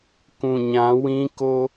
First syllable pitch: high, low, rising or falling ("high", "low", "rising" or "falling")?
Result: low